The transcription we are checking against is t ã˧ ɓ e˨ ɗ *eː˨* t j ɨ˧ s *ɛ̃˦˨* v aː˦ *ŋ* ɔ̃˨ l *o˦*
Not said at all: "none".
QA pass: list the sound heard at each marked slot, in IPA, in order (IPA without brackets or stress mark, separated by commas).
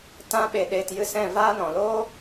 eː˨, ɛ̃˦˨, n, oː˦